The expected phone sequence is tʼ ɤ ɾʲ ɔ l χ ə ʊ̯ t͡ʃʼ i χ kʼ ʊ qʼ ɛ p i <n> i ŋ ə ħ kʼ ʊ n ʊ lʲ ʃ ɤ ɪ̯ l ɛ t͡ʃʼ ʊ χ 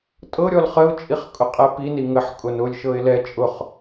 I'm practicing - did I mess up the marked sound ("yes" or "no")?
no